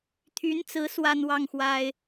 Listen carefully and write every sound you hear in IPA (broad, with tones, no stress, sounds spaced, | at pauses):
t̪ʰ y˧˥ n t͡s ɹ̩˧˥ s w a˥ n w ɑ˥˩ ŋ x w a˥ ɪ̯